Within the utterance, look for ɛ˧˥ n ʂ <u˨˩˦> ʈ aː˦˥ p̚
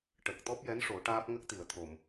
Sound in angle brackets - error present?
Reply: yes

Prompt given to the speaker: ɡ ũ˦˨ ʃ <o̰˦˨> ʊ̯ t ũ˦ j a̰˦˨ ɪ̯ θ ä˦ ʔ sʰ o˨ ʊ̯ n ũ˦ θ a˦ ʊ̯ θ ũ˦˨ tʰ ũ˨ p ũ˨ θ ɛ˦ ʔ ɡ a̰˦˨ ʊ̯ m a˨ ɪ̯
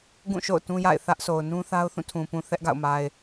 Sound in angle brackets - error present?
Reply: no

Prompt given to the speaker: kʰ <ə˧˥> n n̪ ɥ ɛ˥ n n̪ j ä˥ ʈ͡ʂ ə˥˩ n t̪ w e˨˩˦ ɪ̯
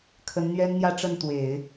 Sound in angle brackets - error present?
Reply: no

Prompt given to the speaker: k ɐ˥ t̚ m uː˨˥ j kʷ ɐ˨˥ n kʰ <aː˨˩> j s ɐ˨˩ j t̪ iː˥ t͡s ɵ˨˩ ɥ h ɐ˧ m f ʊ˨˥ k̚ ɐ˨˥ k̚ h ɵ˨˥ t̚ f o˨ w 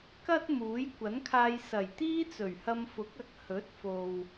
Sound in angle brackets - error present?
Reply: yes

